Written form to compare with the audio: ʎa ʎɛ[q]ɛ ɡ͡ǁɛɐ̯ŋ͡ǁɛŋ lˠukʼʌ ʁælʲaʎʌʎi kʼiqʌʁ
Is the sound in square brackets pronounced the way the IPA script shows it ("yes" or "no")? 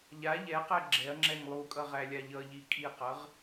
yes